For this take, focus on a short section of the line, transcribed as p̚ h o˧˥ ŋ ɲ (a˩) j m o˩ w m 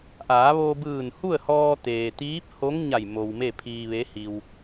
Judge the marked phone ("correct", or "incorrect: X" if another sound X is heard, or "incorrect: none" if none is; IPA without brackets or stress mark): incorrect: a˧˩